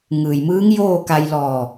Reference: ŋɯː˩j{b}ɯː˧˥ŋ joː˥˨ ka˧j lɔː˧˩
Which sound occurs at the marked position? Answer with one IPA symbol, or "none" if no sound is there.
m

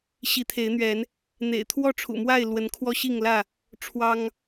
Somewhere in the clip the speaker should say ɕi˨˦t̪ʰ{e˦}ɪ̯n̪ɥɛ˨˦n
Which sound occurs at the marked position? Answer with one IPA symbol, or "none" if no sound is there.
e˨˦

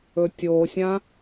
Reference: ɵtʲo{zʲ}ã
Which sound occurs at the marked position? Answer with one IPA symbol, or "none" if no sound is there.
sʲ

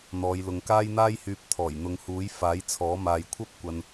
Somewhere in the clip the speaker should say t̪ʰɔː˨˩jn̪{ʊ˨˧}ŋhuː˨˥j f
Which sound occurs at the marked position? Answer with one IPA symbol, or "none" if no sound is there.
ʊ˨˧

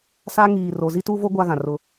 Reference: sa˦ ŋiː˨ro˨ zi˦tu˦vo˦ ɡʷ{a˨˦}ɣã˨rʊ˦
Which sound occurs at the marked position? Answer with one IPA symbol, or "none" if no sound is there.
a˦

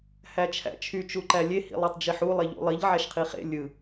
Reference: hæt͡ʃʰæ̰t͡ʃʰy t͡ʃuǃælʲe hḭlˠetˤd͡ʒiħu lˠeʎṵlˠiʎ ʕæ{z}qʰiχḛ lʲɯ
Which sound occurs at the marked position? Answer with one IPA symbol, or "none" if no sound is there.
ʃ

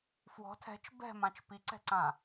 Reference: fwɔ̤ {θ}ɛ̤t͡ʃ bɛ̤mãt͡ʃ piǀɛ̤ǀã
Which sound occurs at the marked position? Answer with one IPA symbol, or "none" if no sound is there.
tʰ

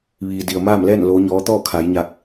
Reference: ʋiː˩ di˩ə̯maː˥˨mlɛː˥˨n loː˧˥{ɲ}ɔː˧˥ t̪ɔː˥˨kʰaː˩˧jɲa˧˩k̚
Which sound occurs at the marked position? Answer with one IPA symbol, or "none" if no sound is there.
ɲ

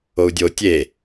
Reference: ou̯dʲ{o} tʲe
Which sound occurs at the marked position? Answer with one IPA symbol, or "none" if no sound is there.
o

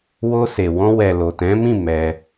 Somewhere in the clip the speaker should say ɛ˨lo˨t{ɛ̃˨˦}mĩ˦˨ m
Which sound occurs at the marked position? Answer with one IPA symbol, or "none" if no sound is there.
ɛ̃˨˦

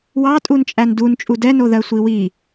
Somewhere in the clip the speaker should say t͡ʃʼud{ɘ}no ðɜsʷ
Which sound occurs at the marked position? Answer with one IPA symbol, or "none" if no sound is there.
ɛ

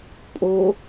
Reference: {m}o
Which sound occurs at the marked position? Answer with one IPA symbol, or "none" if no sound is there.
pʼ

